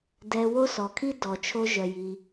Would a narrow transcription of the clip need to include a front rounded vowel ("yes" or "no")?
yes